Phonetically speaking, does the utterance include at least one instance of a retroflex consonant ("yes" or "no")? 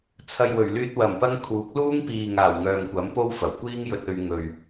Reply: no